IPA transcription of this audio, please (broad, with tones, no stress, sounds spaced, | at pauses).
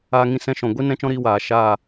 aː˧ ŋ ĩ˧ s ɛ̃˧ ʃ ɔ̃˨ ɡʷ i˦ n ɛ̃˦ t͡ʃ ɔ̃˦ ɾ iː˧ w aː˨ ʃ aː˦˨